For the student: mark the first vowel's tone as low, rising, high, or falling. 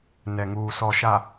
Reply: low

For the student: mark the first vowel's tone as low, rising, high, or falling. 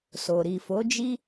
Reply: low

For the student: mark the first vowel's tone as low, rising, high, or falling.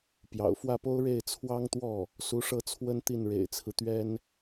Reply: low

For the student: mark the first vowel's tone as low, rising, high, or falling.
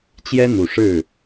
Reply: high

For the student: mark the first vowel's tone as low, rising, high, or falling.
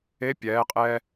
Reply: rising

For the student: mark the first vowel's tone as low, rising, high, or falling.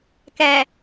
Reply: low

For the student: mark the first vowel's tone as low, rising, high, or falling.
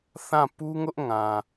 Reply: falling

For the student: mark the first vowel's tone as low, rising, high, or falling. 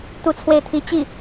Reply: falling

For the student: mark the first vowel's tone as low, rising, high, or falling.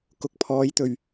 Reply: rising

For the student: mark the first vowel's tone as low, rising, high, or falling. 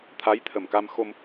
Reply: rising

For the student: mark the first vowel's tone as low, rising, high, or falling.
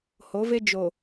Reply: rising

